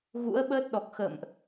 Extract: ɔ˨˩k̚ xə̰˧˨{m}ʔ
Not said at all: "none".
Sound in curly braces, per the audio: m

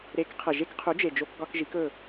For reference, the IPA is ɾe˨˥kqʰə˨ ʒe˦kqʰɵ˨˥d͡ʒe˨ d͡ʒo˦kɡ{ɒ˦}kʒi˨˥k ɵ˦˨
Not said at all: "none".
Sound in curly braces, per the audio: ɒ˦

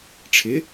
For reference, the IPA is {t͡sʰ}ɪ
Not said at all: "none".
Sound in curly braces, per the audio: ʈ͡ʂʰ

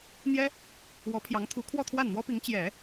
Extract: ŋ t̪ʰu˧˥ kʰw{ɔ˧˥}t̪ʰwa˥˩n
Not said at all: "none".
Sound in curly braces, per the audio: ɔ˥˧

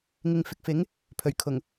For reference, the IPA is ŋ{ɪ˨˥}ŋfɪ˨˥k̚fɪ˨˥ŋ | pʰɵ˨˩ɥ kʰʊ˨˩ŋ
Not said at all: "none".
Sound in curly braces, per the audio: ɪ˨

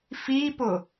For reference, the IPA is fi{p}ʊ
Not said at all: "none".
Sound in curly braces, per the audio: p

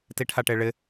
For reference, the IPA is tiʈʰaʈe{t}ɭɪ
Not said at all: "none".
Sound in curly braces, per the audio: none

